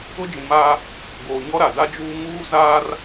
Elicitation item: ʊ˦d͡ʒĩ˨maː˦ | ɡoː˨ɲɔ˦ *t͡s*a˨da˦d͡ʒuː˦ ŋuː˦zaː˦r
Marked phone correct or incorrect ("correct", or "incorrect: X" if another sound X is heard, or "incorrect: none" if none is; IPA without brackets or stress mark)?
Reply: incorrect: ɾ